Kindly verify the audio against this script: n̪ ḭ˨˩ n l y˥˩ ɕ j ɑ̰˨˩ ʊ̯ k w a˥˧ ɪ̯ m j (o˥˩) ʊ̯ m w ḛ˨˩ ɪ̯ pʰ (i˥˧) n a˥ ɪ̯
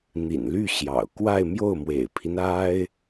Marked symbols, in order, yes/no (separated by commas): yes, no